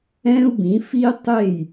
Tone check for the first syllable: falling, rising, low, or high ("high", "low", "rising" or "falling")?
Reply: high